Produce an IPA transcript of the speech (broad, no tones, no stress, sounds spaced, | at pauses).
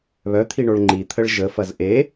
β œ t̪ʰ i ɳ o ɭ ŋ͡ǃ i t̪ʰ ə ɭ ʒ ə f ɐ z ʔ e